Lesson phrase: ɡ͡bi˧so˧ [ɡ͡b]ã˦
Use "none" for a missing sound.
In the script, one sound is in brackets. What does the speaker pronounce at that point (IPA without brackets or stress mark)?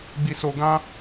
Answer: ɡ